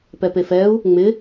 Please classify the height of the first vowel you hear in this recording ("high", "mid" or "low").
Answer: mid